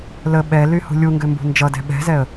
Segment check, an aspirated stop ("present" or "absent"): absent